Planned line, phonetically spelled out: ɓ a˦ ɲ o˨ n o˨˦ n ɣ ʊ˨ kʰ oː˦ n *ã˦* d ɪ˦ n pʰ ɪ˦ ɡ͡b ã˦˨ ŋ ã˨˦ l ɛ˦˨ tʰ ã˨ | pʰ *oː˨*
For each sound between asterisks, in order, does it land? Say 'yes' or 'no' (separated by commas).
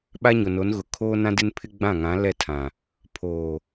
yes, yes